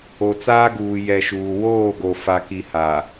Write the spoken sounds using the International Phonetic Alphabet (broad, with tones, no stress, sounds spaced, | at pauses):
o˨ t͡s aː˦ ɡ uː˨ j ɛ˨ ʃ uː˨ w oː˦˨ ɡ o˨ f a˨ k i˨ h a˨